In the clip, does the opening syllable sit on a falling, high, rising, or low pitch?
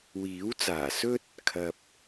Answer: rising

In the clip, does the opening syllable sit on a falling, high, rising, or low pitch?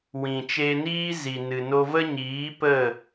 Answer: low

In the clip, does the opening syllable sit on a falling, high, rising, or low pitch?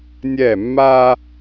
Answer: falling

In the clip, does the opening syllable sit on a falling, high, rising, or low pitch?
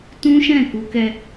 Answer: high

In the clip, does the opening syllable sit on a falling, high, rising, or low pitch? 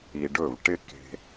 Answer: low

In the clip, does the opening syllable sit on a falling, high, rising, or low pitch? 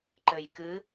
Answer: low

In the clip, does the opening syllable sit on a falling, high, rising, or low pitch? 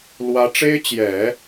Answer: rising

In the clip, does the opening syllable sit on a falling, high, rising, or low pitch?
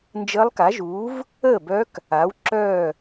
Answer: rising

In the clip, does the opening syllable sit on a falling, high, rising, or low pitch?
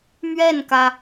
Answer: falling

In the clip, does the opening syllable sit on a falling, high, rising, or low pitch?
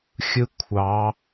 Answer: high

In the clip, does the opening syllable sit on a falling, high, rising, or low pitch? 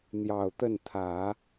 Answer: low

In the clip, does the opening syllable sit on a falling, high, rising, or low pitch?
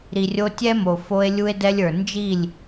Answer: low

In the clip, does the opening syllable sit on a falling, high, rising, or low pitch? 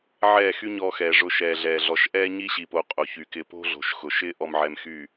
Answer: falling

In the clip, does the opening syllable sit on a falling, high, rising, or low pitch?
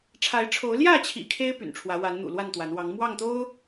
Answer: rising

